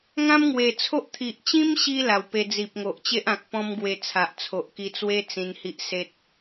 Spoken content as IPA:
ŋ ã˦ m ŋ w e˨˩ t͡sʰ o˦ ʔ t̪ʰ i˨ ʔ t͡ɕ ĩ˦ m ɕ i˧ l a˨˩ w p e˧ d͡z i˨ p̚ ŋ o˨ ʔ t͡ɕ e˦ ʔ ã˨ k̚ p ɔ̃˦ m ɡ w e˧ t͡sʰ a˨ ʔ t͡sʰ o˨ ʔ k i˧ t͡s w e˦ t͡s ĩ˧ n h i˦ ʔ s e˦ t̚

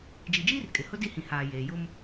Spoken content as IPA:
d͡ʒ i˨ d͡ʒ iː˦ r kʼ ɪ˨ h ʊ˦ d i˦ h ĩ˨ h aː˨ j eː˨ j ʊ˦ m

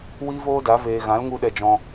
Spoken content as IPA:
w iː˦ v oː˦ d a˨˦ v eː˨ ɣ ã˨˦ l ŋ u˦ ɗ ɛ˧ d͡ʒ ɔ̃˧

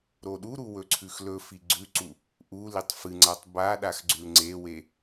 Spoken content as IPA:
ɾ o ɗ u ɾ u w ɵ ǀʰ ʉ x l ɵ f i ɡ͡ǀ ʉ ǀ u | ʔ u l i tˤ f ɨ ŋ͡ǀ a tˤ b a ɗ a x ɡ͡ǀ ʉ l ŋ͡ǀ e w e

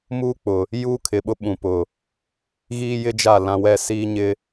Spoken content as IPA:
m uː˦ k͡p ʊ˨ | j uː˦ kʰ ɪ˨ ɓ ʊ˦ ɓ ũ˨ p ʊ˨ | ɣ iː˦ j ɪ˦ d͡ʒ a˦˨ l ã˦ w ɛ˦ s iː˦ ɲ ɪ˦

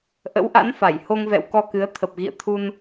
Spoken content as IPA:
ʔ ə̰˧˥ w ʔ a̰˧˥ n f a˧˩ j h o˧ ŋ v ɛ̰˧˨ w k ɔ˧ k ɨ˨˦ ə̯ t̪ʰ ə˨˩ p̚ ɣ ḭ˧˨ ə̯ t̪ʰ u˧ n

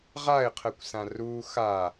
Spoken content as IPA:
ʁ a ɪ̯ qʰ ə kʷ s ã r u x a

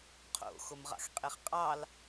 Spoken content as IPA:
qʰ o̰ x o m ʁ ɑ̰ x qʼ e χ qʼ ɑ l

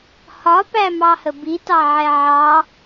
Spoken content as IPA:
h ɒ p æ m ɑ h ə b i t ɑ ʕ ɛ ʕ ɑ

